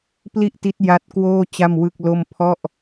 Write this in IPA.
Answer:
p l i˥˩ ʔ t i˦˥ t̚ j a˦˥ t̚ k w oː˥˩ t͡ɕ a˥˩ m w ɯ˥˩ k̚ l o˥˩ m pʰ ɔ˥˩ ʔ

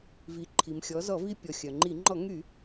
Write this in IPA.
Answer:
v i˩˧ ǃʰ i˩ m xʲ ɔ˩˧ z ɔ˧˩˧ v i˧ pʲ ɔ˩ xʲ œ˩ ŋ͡ǃ i˧˩˧ ŋ͡ǃ ɔ˧˩˧ ŋ y˧˩˧

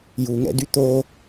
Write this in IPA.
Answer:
j u ŋ ɛ̰ d y t̪ o

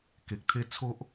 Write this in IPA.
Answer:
k e˨ k̚ t̪ʰ e˦ t͡sʰ o˦ ʔ

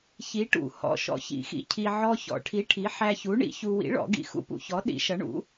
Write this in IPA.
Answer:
ç i˨˥ ʈ ṵ˨˩˦ h ɔ̰˧ ʃ ɔ̰˨˥ ç ḭ˨˩˦ x ḭ˧ cʰ i˧ ʕ ɔ˧ ç ɔ̰˨˩˦ ʈʰ i˨˥ ʈʰ i˨˥ ħ æ˧ ç u˨˥ ɳ ḭ˨˥ ç u˧ w ḭ˨˥ ɭ ɔ̰˨˩˦ ɡ ḭ˧ x ṵ˧ p ṵ˧ ç ɔ˨˥ ɗ ḭ˨˥ ʃ ʌ˨˥ ɳ ṵ˨˥

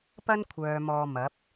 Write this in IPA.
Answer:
p ɐ˥ n kʷʰ œː˨ m ɔː˧ m ɐ˨˥ p̚

